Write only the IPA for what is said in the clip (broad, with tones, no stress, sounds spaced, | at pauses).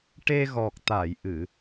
ʈ e˧ ɣ ɔ˨˩ k̚ t̪ a˨˩˨ j ʔ ɨ˨˩˨